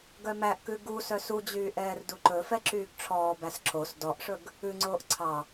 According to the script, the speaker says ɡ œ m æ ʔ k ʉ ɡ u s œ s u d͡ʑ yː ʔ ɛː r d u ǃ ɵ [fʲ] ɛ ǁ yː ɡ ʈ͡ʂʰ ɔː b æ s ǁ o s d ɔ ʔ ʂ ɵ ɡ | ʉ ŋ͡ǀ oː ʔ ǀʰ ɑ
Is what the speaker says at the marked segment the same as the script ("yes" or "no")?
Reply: no